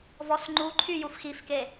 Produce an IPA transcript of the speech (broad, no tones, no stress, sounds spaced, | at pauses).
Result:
v ɔ s ŋ͡ǃ u ǃʰ y j u f x i f k e